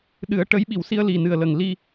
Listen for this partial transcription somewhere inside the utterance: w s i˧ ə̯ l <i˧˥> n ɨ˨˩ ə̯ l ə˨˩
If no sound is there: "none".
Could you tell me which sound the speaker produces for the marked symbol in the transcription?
i˨˩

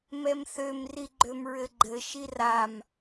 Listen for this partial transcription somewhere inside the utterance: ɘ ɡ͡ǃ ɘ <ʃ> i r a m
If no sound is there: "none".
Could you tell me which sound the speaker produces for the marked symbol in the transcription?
ʃ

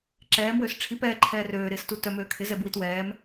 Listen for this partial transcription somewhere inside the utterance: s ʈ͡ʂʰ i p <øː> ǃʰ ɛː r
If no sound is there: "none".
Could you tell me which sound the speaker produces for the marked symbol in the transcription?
ɛː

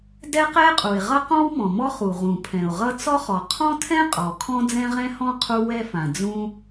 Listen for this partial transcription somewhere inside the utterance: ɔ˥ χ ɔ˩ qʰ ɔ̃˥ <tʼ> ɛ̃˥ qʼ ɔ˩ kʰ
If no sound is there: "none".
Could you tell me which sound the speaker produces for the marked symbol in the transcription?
tʰ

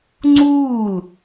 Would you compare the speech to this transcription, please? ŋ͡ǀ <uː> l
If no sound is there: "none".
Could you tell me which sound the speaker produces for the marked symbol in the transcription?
uː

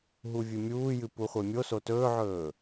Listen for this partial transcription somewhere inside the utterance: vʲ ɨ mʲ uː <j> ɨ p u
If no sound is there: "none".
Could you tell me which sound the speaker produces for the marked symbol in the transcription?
j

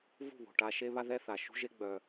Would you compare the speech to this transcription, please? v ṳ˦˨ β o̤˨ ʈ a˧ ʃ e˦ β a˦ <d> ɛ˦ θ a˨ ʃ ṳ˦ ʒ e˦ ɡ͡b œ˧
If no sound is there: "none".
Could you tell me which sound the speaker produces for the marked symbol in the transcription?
ð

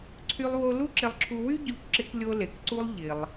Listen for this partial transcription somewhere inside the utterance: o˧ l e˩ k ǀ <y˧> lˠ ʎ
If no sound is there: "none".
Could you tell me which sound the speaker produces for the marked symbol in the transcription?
u˧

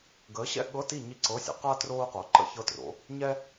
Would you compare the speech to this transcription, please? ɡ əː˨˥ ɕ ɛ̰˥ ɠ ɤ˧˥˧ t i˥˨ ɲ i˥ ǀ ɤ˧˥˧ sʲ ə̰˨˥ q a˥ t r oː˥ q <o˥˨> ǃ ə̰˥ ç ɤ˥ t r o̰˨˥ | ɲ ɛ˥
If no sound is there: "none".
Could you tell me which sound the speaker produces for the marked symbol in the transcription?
o˨˥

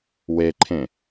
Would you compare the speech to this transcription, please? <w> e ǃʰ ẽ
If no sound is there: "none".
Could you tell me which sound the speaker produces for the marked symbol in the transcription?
w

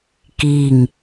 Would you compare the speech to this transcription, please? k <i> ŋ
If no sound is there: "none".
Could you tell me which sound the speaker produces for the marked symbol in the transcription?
i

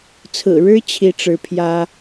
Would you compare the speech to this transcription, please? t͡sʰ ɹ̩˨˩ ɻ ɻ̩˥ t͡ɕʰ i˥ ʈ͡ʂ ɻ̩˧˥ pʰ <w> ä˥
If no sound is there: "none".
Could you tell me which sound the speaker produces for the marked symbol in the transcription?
j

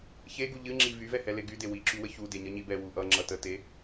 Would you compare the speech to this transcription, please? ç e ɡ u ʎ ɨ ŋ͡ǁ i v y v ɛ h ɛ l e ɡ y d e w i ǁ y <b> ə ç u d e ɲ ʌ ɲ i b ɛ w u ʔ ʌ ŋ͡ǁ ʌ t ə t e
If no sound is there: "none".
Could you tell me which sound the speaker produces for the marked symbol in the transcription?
w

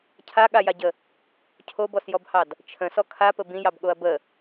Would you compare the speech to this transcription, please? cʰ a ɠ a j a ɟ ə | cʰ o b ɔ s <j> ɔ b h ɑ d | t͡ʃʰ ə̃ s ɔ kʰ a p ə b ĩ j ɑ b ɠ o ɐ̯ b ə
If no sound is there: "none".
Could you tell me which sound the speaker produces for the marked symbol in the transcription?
j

